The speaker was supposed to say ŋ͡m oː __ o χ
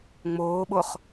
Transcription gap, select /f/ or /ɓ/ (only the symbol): ɓ